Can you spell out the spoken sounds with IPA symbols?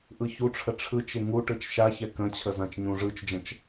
ʔ ɯ ç u ʈ͡ʂʰ ə ʈ͡ʂʰ ɯ t͡ʃ e ŋ u ʈ ɯ t͡ʃ ʃ a ç ɛ k ə̃ t͡ɕʰ ə z ã t͡ʃ ɲ ũ ʐ ɯ t͡ʃ d͡ʒ ə̃ t͡ʃ

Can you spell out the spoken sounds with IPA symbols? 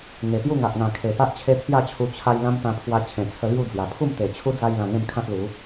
ŋ e˨˩ t̪ j u˥˧ ŋ a˨ ʔ ŋ ã˨˩ kʰ e˨˩ p a˦ ʔ t͡ɕʰ e˦ t̪ʰ j a˥˧ t͡ɕʰ u˧ t͡ɕʰ a˧ j l ã˦ m t̪ ã˧ pʰ w a˧ t͡ɕʰ ẽ˨˩ t͡sʰ ə˧ l j u˥˧ d͡z j a˨˩ pʰ u˥˧ m t̪ e˨˩ t͡ɕʰ u˦ d͡z a˧ j l ã˧ ŋ ẽ˥˧ m kʰ ã˦ t̚ l u˨˦

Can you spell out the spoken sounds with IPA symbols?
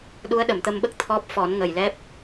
ɗ u˧˥ ə̯ ɗ ə˨˩˨ m t̪ ə˧ m ɓ ə˦˥ k̚ t̪ʰ ɔ˦˥ p̚ f ɔ˨˩˦ n ŋ ə˨˩ j l ɛ˦˥ p̚

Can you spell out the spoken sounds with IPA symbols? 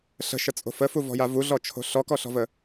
ɬ ə̤ ʃ ə t͡sʼ o̤ f ə f u v ɔ̤ j a v u ɮ ɔ t͡ʃʰ o̤ ɬ ɔ k ɔ ɬ ɔ̤ v ə

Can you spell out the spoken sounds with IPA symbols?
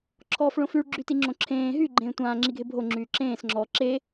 ǁʰ ɔː f ɭ õ f y ɭ ɡ͡ǁ y t i ŋ͡ǁ õ ǁʰ ẽː ɦ y ɡ͡ǃ ẽː tʷ ãː ŋ͡ǁ i ɡʱ e bʱ o ŋ͡ǁ yː ǁ ẽː s ŋ͡ǁ ɔː ǁ e

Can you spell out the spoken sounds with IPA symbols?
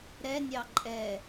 ɾ ɛ nʲ ɑ ǃʼ ɛ

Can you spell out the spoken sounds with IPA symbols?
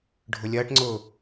ɖʱ ʊ lʲ ɐː ʈ ŋ͡ǀ ʊː

